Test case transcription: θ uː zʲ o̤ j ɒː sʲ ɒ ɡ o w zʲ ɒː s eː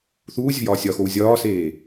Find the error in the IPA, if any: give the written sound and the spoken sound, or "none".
ɡ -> x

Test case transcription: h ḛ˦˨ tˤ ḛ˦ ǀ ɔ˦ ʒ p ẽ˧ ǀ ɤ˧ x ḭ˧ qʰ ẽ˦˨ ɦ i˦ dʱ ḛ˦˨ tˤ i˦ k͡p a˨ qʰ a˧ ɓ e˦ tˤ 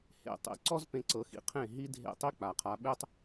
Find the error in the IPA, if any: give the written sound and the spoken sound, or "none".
ʒ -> z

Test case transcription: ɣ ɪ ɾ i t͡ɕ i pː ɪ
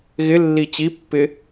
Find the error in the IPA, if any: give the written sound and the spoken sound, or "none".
ɾ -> lː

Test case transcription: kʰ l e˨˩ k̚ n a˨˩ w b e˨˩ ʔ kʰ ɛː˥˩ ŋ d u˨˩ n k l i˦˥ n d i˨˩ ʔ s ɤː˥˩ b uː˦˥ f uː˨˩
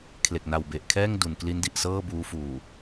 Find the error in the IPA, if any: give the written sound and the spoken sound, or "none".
none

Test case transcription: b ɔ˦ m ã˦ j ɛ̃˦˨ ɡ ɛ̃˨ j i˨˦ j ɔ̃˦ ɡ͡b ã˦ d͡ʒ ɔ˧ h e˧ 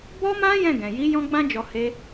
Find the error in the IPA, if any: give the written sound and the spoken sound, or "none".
none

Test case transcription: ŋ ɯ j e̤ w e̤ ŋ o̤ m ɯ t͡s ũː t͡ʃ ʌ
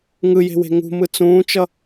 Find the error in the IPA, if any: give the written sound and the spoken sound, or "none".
o̤ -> ṳ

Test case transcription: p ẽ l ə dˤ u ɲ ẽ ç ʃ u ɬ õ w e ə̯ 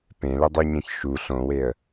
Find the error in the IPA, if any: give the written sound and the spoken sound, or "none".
none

